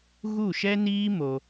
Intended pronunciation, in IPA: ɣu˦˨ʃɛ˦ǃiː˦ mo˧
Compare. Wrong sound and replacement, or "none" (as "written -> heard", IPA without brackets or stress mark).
ǃ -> n